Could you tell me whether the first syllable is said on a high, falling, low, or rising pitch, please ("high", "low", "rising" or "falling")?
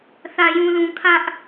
low